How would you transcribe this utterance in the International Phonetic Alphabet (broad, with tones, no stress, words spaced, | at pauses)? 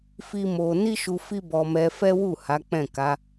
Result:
fi˦mo˧ ni˦ʃu˧ fi˦bɔ˧mɛ˧ fɛ˦wu˦˨ ha˨˦k͡pɛ̃˦˨ka˨˦